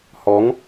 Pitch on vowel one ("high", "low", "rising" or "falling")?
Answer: rising